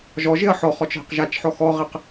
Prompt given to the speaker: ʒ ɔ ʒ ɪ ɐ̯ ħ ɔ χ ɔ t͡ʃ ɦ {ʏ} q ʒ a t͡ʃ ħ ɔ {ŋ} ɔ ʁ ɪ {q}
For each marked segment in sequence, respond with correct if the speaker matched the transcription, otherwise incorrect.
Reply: incorrect, incorrect, correct

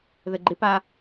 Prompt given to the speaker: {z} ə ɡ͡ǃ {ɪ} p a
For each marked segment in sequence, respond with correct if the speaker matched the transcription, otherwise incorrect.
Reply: incorrect, correct

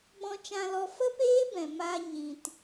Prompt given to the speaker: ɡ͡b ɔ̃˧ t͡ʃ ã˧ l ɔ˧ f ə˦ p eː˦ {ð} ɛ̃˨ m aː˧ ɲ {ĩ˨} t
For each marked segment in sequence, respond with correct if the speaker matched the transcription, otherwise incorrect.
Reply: incorrect, correct

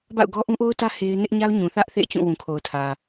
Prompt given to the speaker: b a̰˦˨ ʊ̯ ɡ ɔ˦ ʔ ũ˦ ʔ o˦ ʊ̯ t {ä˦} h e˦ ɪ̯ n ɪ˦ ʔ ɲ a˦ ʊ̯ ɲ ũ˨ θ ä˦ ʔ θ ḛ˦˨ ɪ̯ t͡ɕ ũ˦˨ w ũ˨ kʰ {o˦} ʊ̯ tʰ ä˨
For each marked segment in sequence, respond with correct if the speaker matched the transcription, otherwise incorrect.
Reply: correct, incorrect

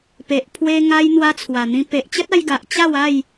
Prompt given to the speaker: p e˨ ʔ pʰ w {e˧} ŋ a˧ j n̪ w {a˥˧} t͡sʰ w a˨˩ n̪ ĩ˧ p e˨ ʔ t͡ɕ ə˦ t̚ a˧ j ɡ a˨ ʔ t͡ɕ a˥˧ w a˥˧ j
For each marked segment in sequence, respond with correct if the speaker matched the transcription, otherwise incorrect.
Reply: correct, incorrect

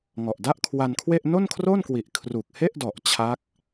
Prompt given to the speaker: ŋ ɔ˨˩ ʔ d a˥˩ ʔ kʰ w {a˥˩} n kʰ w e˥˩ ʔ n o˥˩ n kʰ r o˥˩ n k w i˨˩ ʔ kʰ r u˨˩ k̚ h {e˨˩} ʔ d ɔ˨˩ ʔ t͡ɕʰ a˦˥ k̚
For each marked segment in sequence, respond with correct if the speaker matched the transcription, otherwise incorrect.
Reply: incorrect, incorrect

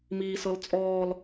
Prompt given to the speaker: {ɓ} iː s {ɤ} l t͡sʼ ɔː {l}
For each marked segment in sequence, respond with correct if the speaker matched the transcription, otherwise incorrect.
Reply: incorrect, correct, correct

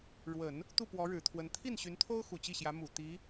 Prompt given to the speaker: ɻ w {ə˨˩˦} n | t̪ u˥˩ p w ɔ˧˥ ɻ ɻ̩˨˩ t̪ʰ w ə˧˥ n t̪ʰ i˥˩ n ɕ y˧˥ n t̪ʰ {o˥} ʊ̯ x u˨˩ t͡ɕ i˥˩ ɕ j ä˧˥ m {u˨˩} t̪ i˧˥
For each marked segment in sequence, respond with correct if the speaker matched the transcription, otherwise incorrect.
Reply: correct, correct, correct

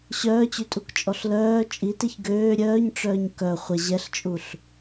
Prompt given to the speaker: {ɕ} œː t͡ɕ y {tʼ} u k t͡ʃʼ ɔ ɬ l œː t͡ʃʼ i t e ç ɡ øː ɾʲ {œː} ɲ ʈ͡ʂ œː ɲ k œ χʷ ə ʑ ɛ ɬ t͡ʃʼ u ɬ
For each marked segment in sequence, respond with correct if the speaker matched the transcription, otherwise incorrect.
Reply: correct, correct, correct

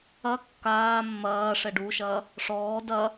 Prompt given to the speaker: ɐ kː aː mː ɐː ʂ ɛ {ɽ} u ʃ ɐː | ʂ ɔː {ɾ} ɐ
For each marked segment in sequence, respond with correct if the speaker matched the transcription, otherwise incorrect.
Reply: incorrect, incorrect

